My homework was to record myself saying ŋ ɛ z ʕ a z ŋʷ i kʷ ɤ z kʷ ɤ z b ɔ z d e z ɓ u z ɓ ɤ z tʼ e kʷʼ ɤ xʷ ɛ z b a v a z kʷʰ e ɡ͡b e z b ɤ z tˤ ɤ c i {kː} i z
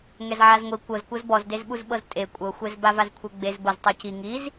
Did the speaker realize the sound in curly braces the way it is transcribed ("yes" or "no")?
no